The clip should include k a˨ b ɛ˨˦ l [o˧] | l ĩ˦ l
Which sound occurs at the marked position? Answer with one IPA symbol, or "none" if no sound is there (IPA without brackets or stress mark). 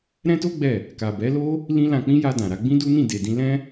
o˦